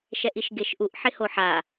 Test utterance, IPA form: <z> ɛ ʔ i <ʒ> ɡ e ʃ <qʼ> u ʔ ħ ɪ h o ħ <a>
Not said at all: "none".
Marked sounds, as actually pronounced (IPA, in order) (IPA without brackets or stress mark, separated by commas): ʃ, ʃ, ʔ, a